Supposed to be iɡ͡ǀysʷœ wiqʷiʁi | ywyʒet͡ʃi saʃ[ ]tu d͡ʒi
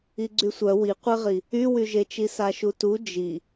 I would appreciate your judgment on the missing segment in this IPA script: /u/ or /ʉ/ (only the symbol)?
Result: u